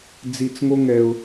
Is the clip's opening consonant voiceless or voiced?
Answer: voiced